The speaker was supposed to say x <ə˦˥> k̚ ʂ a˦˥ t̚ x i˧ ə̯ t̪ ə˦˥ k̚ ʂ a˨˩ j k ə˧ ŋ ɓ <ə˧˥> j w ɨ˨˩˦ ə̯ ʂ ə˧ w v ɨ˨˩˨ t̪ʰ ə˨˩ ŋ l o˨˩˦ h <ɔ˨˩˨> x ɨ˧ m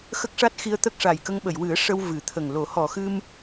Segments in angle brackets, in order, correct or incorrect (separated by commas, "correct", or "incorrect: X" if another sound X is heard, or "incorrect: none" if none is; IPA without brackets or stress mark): correct, incorrect: ə˨˩˨, correct